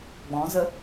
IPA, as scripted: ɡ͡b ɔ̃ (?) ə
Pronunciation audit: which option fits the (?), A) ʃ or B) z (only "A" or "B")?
B